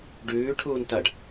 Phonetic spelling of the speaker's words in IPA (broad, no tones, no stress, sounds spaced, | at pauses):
ɖ ʉː ʈʰ uː n t ɐ ɖ